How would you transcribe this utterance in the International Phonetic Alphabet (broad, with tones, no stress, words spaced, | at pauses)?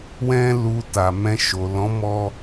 wɛ̃˦lu˧ta˨ mɛ̃˧ ʃo˨ lɔ̃˨˦mɔ˧